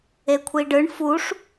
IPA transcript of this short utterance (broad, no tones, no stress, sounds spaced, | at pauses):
e kʷʰ i ɖ ɯ ɳ f u ʂ